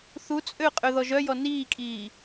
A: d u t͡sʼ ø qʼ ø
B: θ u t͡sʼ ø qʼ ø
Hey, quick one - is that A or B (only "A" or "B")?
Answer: B